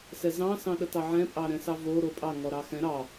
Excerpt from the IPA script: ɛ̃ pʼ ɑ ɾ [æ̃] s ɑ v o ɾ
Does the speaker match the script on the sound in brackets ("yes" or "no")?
no